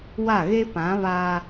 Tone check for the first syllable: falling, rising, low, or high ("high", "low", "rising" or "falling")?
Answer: falling